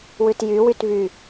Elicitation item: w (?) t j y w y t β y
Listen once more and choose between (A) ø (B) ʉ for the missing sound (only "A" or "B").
B